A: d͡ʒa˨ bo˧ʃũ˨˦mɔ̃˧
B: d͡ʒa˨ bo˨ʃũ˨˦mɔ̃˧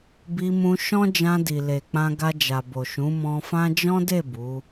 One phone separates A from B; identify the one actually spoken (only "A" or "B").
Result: B